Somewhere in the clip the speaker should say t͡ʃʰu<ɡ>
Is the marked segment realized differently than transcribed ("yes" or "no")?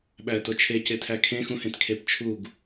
no